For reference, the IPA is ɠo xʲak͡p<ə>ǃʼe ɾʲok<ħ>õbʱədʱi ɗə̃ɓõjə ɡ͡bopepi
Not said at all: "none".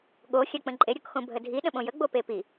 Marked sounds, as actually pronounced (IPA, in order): ə̃, x

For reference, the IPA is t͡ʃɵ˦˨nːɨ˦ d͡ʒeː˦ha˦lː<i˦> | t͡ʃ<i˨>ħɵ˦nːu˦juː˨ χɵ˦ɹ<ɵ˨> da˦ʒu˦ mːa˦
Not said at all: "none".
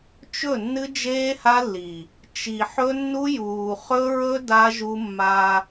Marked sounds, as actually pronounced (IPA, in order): i˨, i˨, ɵ˦

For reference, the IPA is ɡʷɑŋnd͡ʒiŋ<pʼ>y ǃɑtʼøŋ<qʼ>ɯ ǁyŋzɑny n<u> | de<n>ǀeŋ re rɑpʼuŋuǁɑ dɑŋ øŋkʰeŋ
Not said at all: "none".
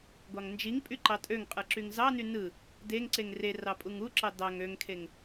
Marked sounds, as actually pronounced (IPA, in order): pʼ, qʼ, ɯ, ŋ

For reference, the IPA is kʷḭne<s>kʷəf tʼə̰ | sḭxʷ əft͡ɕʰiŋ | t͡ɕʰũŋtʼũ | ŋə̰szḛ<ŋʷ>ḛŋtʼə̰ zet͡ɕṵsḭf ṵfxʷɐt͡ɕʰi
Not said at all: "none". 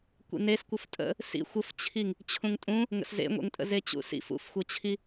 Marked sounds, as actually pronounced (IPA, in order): s, ŋʷ

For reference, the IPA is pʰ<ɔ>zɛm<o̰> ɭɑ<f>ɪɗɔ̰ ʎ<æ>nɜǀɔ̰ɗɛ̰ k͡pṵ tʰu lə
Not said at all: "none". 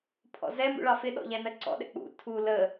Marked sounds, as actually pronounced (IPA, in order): ɔ̰, ṵ, f, æ

